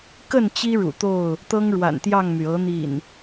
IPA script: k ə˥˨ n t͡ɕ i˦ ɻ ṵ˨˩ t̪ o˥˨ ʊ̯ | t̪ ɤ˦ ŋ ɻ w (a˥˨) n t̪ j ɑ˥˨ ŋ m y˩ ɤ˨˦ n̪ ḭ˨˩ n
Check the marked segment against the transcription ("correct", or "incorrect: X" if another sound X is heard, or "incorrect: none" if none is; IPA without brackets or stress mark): incorrect: a̰˨˩